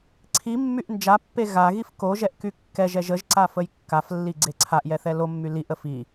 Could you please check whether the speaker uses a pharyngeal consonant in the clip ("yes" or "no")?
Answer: no